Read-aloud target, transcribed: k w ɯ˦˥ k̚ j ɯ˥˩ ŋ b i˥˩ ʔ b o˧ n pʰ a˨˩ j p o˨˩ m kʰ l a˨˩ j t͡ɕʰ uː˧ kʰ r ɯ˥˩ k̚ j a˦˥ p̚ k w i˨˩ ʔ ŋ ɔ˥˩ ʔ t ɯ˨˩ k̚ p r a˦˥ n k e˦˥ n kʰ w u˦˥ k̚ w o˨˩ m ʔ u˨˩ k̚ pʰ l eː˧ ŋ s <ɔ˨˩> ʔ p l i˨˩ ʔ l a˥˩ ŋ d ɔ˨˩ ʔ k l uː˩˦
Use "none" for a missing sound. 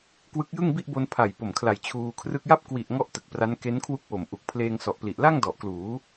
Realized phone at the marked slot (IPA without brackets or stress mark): ɔ˨˩